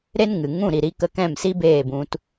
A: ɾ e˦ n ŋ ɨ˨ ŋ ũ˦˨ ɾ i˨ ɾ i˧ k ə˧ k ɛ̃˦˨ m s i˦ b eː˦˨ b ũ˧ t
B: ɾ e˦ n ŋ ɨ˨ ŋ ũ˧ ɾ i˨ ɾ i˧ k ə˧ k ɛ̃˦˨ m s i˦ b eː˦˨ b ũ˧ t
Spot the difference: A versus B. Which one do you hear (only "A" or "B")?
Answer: A